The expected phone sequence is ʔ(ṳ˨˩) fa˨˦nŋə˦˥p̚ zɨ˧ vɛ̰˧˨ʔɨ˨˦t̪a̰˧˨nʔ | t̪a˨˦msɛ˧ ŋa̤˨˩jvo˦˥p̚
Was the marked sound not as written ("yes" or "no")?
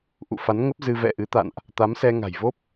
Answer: yes